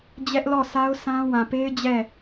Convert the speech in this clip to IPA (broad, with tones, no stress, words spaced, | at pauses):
d͡ʑɛ˦ʔlɔ˦˨sa˦ʊ̯ sã˦ wã˨pe˦ɪ̯ d͡ʑɛ˦˨